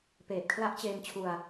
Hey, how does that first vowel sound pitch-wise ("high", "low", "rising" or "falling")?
low